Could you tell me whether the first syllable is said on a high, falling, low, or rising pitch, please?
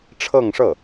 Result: falling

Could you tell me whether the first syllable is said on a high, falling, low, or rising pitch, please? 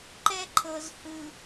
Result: high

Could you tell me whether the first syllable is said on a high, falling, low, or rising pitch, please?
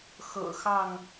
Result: low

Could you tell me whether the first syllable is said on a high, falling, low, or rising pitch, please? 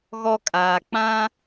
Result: high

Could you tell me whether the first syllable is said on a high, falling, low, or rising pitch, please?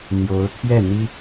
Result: rising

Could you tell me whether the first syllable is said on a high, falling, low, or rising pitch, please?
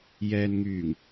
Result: low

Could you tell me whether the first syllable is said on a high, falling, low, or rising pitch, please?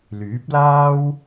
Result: rising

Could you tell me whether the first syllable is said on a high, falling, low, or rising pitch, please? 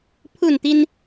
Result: falling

